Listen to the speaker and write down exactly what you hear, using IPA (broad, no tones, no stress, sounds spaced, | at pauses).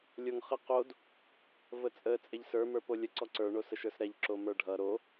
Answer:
lʲ o ŋ χ ə q o d | v ə t͡sʼ ə t͡sʼ e ʎ s ə˞ m ə˞ p o lʲ ə ǀ ɔ ǀ ə˞ ɳ o s ə ʃ ə˞ s ɾ ɛ ʎ ǁ o m ə˞ ɖʱ ʌ ɾ o